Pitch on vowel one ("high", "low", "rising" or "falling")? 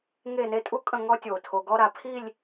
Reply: falling